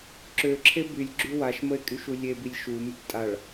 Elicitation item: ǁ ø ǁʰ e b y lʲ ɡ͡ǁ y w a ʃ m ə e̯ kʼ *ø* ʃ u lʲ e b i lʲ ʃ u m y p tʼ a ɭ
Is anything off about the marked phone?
yes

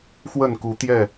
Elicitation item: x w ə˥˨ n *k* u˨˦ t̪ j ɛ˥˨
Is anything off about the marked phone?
no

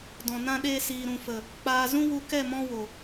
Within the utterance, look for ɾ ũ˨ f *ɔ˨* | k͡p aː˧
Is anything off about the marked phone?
yes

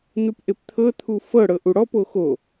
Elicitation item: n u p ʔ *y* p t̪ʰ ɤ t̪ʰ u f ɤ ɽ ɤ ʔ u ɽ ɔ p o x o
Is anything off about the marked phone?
yes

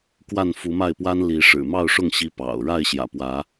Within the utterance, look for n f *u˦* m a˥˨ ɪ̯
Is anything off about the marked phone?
yes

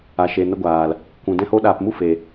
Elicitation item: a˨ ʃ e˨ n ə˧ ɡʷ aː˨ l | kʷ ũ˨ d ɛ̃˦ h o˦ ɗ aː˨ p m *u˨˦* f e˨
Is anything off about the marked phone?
yes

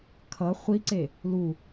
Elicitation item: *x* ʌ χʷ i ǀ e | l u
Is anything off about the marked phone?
yes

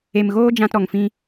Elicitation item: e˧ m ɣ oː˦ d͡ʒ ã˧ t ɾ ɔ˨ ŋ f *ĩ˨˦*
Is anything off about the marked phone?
yes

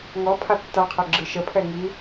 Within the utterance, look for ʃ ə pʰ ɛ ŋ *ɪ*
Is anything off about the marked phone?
yes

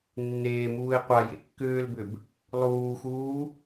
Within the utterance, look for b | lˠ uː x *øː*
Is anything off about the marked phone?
yes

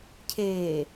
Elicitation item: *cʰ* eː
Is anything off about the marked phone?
no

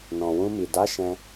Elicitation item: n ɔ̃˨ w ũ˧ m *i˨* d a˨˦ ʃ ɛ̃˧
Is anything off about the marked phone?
no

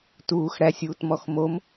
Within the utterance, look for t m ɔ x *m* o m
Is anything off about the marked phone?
no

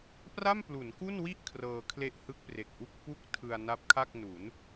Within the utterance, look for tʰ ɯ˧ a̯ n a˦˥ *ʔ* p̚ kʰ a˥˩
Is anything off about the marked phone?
yes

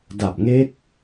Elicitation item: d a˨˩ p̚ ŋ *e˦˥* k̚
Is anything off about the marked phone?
no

